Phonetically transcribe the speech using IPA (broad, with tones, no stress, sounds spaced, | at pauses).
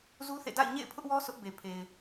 z u˦ θ ḛ˦˨ d a̰˦˨ ɪ̯ ɲ ḛ˦˨ ɪ̯ pʰ ʊ˦ ʔ w ɔ˦ s ʊ˦ ʔ b e˨ pʰ e˨ ɪ̯